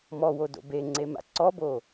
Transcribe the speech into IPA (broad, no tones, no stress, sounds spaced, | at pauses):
m ɔ w o d o̰ b e ŋ͡ǀ e m a̰ ǀ ɔ b o